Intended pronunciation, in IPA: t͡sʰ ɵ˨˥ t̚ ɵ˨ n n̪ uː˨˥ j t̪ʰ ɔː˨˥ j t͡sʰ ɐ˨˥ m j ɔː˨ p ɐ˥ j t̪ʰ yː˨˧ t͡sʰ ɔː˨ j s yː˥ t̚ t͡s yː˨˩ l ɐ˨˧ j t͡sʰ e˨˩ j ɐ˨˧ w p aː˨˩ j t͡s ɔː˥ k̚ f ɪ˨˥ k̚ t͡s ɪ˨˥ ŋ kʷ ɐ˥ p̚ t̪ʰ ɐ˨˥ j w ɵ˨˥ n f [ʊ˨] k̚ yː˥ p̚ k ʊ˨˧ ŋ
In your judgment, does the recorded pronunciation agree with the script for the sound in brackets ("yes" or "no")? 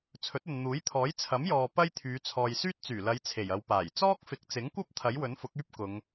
no